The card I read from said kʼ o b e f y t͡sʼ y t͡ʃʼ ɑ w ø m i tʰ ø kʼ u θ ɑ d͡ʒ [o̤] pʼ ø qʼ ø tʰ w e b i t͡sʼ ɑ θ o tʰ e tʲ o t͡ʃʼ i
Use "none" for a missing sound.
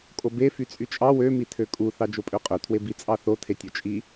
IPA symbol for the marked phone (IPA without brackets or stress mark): o